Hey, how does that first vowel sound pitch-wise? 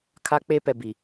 high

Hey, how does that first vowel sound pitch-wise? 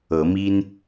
rising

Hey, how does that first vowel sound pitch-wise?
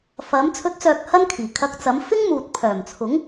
rising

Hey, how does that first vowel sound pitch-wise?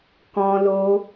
high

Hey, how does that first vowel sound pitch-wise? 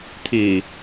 low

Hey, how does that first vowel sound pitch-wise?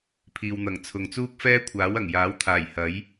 low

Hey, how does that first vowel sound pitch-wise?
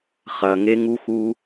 low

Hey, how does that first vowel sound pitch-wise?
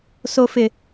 low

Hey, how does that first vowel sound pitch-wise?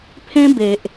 high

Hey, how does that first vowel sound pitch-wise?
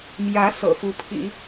rising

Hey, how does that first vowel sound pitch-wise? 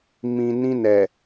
low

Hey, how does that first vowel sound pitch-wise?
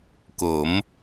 rising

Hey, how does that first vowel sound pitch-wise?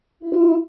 high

